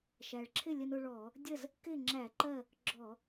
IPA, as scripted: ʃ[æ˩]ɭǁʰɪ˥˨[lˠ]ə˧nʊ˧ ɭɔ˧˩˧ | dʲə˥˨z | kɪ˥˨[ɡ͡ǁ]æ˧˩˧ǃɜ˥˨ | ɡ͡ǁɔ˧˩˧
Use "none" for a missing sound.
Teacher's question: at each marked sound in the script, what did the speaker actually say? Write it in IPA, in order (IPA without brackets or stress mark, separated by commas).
æ˩, lʲ, ŋ͡ǁ